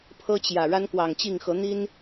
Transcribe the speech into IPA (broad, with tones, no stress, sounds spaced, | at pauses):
pʰ ɤ˦ t͡ɕ j ä˨˩ ɻ a˦ n k w ɑ˨˩ ŋ t͡ɕ i˥˨ ŋ x ɤ˨˦ n̪ i˦ n